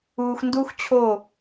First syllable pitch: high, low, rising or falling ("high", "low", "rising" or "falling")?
low